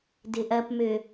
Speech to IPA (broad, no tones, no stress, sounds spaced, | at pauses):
d ɪ ʔ ɐ p m ø